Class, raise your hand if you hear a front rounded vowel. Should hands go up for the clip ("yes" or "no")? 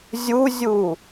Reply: no